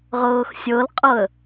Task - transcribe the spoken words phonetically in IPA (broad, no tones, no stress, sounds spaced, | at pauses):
ʁ ɤː x sʲ ɤ l qʼ ɤ ə̯